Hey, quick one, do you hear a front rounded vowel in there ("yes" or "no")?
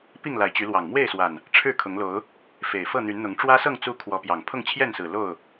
yes